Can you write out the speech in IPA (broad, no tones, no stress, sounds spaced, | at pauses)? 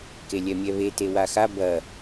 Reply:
k e lʲ ɛ mʲ ɛ β e t e w a x a b ɐ